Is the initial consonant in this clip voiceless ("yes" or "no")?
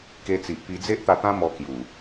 yes